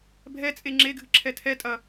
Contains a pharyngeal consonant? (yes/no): no